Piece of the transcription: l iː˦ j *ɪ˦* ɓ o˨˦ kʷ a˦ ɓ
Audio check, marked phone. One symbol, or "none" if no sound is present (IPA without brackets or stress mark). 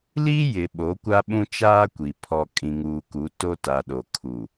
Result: ɪ˨